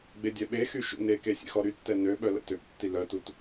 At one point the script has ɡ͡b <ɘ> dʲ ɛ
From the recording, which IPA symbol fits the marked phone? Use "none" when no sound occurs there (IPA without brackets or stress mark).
e